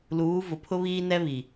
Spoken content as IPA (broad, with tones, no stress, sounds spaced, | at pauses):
l uː˨˦ v ʊ˨ pʰ ʊ˦ β iː˦ n ɛ˦ β i˨